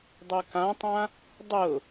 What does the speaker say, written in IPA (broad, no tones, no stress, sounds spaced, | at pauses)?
dˤ o k ã tˤ ã | dˤ ʊ